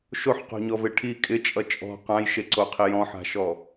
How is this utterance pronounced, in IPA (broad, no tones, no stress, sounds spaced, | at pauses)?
ʃ o ħ q o̤ ɲ ɔ v e ʈʰ i kʼ ɪ t͡ʃʼ ʌ t͡ʃʼ ɔ̤ q ã j ʃ e ǀ o qʰ i j ɔ̃ ħ a̤ ʃ ɔ